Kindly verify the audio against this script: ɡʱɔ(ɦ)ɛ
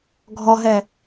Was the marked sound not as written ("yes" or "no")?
no